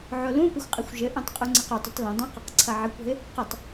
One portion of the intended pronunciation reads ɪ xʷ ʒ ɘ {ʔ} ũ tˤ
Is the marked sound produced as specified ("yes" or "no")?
yes